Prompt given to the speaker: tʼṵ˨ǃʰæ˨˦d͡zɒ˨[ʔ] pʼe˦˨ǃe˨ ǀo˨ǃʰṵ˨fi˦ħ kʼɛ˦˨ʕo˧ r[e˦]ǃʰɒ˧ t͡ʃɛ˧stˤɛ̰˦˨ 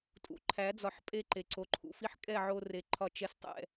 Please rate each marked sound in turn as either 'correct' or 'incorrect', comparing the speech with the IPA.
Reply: incorrect, incorrect

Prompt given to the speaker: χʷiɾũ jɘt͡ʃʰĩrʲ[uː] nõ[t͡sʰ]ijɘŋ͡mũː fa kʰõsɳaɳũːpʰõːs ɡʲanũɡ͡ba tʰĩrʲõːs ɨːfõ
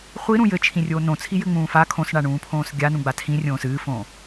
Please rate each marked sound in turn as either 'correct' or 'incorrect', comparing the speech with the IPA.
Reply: incorrect, correct

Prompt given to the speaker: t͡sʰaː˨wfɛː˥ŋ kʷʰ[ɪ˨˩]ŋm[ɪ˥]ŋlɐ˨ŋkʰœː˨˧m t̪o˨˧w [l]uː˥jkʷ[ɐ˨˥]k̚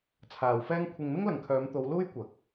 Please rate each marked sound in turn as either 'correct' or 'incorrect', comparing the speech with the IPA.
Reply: incorrect, correct, correct, correct

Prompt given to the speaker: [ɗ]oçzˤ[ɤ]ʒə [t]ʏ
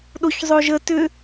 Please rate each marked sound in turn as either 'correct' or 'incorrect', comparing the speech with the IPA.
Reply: correct, incorrect, correct

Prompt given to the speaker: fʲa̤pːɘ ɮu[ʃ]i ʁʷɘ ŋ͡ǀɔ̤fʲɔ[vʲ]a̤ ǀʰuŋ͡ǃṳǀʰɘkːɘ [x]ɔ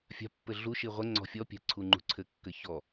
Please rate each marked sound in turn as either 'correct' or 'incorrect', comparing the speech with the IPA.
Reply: correct, incorrect, incorrect

